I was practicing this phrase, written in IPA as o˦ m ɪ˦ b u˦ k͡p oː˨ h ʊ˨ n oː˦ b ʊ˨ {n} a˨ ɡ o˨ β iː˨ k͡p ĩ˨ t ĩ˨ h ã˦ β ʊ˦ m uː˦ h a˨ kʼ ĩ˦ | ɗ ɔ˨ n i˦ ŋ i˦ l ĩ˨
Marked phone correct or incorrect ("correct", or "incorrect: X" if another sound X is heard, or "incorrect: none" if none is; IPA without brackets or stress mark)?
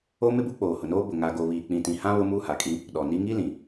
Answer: incorrect: ŋ